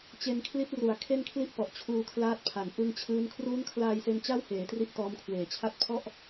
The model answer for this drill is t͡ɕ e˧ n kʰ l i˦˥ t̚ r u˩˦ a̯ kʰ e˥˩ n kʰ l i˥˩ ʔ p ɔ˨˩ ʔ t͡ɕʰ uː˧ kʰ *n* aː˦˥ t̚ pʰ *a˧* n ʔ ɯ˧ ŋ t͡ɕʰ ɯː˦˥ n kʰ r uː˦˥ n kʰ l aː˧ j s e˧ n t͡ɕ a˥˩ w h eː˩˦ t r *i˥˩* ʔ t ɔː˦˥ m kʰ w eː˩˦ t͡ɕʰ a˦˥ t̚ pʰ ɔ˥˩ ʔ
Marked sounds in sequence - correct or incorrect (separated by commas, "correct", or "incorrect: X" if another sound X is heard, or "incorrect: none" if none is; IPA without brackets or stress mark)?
incorrect: l, incorrect: a˩˦, correct